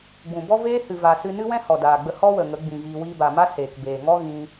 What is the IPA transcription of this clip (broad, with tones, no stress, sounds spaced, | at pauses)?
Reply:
ɡ͡b ũ˨ b ɔ˦ v eː˦ h ɨ˨ v aː˨ s ɨ˧ n ɨ˦ w ɛ̃˦ h ɔ˨ d aː˨ ɡ͡b ə˧ h ɔ˦ w ə˨ ŋ ə˨˦ ɡ͡b ĩ˨ ɣ iː˧ w iː˧ b a˨ m a˦ s eː˨ k b eː˨ ŋ ɔ˦ ɣ ĩ˧